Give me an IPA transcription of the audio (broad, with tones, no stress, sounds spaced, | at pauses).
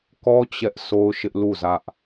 k ɔ˦ t͡ɕ ɛ˦ ʔ sʰ o˦ ʊ̯ ʃ ɪ˦ ʔ l u˦˨ z ä˦ ʔ